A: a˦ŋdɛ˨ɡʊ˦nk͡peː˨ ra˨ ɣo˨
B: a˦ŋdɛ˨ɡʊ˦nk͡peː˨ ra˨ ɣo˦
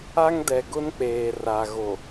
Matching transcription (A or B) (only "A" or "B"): A